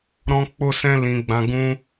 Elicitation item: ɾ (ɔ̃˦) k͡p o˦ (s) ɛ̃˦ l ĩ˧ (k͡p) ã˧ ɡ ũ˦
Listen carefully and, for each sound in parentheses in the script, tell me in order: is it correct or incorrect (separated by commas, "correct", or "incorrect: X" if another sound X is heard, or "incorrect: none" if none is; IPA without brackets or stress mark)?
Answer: correct, correct, incorrect: ɡ͡b